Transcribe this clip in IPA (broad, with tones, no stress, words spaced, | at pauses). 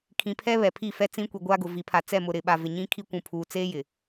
kʰĩ˨pʰɛ˦ βɛ˨pʰi˦˨fɛ˦t͡sĩ˦ kʷi˨ɡʷaː˦ɡʊ˨ vi˨˦pʰa˨ t͡sɛ˦˨mʊ˨ɾɪ˨ɓa˨ vɪ˨ɲĩ˦ kʰi˦kʷũ˨pʰuː˨ t͡seː˦ jɪ˨